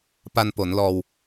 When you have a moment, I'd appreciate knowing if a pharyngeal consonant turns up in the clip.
no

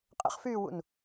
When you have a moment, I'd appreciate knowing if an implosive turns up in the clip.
no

